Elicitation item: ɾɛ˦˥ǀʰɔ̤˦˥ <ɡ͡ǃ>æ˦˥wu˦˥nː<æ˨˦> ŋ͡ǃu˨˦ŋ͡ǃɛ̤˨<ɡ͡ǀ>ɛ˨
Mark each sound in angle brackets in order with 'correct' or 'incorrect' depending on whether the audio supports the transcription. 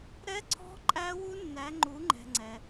incorrect: ǃʼ, correct, incorrect: ŋ͡ǀ

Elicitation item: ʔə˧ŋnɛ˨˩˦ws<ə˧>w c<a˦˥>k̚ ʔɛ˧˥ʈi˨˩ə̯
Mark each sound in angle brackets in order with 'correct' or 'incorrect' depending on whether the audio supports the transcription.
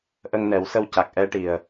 correct, incorrect: a˨˩

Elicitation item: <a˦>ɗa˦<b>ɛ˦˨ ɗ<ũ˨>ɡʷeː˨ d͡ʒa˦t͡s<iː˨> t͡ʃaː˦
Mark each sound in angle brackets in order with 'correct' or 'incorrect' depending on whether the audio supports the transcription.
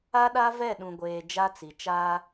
correct, incorrect: v, correct, incorrect: i˨

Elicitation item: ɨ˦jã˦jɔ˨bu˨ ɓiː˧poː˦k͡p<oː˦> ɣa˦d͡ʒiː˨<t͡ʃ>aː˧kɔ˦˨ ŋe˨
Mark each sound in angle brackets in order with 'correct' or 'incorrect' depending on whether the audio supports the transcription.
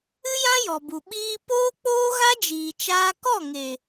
correct, correct

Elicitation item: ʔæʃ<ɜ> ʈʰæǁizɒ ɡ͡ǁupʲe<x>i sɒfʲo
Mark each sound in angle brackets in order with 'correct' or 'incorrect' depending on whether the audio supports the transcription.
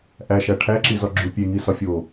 incorrect: æ, incorrect: ŋ

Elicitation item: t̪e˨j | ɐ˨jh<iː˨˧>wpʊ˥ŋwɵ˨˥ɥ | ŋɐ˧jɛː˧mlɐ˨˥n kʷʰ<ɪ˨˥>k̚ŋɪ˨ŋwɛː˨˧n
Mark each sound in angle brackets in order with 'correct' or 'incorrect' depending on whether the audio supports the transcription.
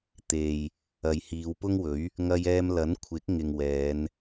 correct, correct

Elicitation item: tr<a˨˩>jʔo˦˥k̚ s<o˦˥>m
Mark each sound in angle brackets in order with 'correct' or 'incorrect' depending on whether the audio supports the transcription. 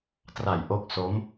correct, correct

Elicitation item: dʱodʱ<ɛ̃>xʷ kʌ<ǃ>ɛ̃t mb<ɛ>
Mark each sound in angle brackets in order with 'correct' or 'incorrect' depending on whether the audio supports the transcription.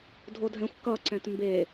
correct, incorrect: ǀ, incorrect: e

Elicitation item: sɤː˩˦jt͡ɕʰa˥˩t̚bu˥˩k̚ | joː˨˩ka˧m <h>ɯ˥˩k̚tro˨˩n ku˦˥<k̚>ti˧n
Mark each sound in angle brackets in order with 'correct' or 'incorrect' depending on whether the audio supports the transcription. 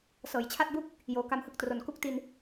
correct, correct

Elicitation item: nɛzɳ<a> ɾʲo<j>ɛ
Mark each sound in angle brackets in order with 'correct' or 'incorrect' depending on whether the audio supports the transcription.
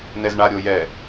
correct, correct

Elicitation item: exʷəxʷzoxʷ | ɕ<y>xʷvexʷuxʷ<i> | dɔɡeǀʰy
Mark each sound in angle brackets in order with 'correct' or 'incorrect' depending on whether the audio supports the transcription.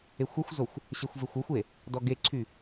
incorrect: e, incorrect: e

